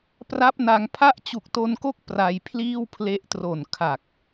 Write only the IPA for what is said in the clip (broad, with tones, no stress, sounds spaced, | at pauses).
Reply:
p r a˦˥ p̚ n a˧ ŋ pʰ a˦˥ ʔ t͡ɕ u˨˩ k̚ t o˧ n k o˦˥ k̚ p r a˧ j pʰ l iː˥˩ w pʰ l e˦˥ ʔ t r o˨˩ n kʰ a˨˩ k̚